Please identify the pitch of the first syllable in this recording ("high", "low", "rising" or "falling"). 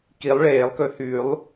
rising